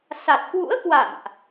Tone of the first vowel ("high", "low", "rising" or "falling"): low